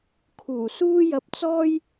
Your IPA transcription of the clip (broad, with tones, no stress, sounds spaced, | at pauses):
kʰ uː˨˩ s uː˥ j ɐ˧ p̚ t͡s ɔː˥ j